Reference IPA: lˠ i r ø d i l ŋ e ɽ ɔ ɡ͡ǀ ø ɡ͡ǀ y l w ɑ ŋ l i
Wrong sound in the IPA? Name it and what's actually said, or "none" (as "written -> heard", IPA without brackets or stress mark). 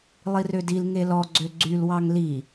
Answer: ɽ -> l